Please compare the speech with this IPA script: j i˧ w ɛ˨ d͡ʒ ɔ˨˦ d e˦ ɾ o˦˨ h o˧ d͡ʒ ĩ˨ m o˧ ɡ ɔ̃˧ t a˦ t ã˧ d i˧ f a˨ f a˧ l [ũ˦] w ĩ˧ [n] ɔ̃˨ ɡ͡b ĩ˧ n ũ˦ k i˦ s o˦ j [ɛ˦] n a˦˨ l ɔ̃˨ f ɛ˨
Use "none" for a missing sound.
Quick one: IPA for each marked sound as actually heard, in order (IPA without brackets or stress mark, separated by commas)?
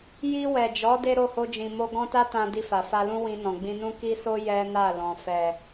ũ˦, n, ɛ˦